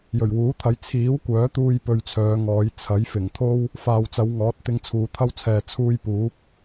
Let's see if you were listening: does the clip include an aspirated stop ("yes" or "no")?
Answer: yes